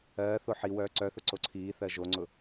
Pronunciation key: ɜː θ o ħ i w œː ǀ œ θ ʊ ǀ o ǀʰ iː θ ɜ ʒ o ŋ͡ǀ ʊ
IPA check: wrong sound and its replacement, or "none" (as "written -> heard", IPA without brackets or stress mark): none